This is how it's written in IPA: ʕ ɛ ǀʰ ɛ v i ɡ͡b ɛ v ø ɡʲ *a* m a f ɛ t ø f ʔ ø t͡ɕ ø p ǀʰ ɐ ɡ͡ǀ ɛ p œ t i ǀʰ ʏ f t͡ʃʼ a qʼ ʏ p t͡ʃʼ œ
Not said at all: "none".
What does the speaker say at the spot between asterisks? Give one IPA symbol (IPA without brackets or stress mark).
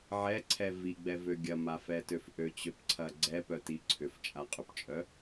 ɐ